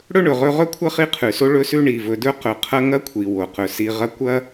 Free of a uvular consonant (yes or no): no